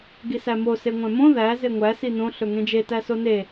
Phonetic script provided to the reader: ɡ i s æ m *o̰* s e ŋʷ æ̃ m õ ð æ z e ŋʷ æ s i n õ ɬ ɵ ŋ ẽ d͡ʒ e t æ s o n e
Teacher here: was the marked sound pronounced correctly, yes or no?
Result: no